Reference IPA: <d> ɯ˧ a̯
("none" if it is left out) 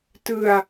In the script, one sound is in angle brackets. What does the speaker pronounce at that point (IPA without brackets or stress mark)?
t